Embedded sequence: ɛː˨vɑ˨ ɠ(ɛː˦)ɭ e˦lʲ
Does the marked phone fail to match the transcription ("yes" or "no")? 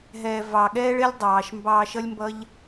no